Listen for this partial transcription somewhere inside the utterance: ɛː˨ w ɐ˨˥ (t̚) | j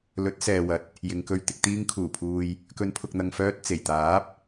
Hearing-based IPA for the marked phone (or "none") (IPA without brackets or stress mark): t̚